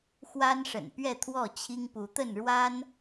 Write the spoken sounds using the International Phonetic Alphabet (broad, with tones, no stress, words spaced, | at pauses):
xwa˦nʂə̰˨˩n pɥɛ˥˨t̪ʰwɔ˥˨ t͡ɕʰi˦ŋpu˨˦t̪ə˥˨n ɻwa˦n